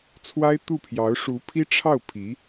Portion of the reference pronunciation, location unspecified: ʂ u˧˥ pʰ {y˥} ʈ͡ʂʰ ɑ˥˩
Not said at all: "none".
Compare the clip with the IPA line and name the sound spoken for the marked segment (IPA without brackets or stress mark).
i˥